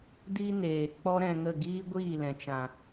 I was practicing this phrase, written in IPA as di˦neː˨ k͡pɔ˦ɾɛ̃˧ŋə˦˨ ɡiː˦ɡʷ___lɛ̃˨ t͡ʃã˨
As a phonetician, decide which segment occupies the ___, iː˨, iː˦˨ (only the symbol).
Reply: iː˦˨